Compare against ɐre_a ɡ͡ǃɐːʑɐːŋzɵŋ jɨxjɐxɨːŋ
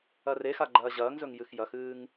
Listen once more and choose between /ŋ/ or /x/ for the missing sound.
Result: x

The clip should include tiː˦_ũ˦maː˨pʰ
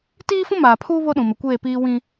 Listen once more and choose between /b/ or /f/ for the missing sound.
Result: f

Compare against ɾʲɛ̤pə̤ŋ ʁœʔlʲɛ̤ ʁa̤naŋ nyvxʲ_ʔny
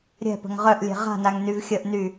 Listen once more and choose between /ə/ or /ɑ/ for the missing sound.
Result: ə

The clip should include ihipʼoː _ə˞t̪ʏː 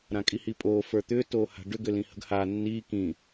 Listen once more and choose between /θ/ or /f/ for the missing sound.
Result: f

